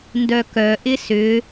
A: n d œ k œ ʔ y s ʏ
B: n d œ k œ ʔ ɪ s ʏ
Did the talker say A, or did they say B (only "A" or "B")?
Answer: B